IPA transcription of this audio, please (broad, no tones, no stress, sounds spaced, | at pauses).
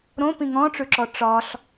ɾ õ p ĩ ŋ ɔ̃ ʈ͡ʂ ʉ ǁ ɔ ʈ͡ʂ ɒ ɬ